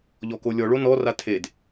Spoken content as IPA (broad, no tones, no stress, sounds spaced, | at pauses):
ʎ ɔ k o lʲ ɔ ɭ o n ɔ r a tʰ e d